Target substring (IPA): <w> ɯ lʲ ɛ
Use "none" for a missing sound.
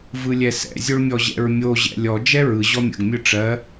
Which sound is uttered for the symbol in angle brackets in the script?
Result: v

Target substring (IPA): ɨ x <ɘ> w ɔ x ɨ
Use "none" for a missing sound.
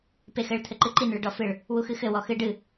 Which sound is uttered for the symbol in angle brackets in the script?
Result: ɘ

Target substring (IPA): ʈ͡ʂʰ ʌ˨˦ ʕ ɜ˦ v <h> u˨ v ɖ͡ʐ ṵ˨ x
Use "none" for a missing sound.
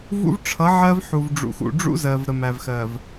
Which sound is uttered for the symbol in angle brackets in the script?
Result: ħ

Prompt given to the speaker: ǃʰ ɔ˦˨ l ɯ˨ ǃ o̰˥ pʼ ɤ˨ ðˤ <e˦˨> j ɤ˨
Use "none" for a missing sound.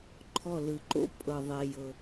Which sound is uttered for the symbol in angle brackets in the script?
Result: e˨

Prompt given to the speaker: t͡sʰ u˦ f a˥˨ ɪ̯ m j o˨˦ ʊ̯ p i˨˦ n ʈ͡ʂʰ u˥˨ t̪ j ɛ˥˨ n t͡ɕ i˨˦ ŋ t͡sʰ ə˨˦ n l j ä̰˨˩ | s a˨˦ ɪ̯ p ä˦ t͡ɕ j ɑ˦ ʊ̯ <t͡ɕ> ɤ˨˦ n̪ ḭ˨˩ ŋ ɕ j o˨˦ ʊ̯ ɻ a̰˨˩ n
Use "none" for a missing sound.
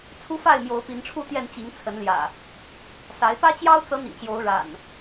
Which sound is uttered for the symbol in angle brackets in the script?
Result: t͡s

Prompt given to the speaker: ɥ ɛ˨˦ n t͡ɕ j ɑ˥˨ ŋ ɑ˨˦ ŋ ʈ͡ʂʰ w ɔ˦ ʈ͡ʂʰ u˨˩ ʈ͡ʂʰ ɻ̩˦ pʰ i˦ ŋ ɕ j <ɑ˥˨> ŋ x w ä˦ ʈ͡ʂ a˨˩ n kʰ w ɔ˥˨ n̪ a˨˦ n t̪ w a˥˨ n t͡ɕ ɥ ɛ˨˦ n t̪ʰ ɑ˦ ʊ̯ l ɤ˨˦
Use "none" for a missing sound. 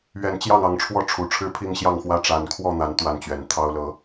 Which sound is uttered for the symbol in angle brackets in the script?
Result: ɑ˥˨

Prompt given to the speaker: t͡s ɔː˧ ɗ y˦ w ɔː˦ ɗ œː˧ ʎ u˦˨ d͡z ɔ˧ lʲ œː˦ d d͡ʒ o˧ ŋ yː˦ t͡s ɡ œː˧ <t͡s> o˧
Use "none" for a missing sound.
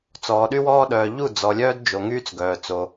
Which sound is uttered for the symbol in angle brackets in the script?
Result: t͡s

